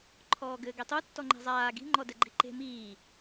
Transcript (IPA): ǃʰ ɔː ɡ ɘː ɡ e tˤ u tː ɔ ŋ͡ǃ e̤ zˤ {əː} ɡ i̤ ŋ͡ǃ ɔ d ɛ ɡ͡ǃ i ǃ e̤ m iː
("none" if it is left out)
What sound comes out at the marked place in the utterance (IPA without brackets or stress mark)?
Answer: aː